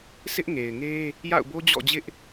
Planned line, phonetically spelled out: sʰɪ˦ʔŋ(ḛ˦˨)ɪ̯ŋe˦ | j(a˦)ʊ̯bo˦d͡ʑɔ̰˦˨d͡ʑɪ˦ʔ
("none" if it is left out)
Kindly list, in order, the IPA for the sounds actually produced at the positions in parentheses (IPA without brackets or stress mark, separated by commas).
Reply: e˨, a̰˦˨